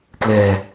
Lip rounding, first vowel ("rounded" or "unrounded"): unrounded